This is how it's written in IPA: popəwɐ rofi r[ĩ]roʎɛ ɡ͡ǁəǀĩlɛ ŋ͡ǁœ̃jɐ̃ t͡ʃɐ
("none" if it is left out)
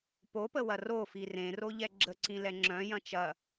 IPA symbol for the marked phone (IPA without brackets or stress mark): ẽ